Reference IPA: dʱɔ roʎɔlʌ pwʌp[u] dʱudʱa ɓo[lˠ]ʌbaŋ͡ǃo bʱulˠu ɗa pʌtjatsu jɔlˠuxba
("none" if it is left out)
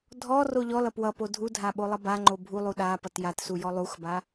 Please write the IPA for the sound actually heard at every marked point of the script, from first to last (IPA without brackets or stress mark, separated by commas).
o, lˠ